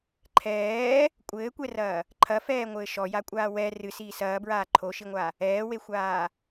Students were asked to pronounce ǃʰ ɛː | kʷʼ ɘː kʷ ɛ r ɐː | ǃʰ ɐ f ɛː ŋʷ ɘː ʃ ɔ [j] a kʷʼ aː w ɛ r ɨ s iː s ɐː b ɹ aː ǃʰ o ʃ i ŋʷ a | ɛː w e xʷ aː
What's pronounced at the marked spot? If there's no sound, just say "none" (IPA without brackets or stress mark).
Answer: j